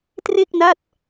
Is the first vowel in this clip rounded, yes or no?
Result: no